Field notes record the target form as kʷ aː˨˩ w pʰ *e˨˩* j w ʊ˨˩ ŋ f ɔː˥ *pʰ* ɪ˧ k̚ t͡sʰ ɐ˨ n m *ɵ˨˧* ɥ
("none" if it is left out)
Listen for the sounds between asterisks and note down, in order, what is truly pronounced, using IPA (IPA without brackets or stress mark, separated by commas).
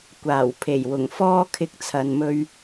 e˨˩, kʰ, ɵ˧